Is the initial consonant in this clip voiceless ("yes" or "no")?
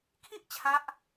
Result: yes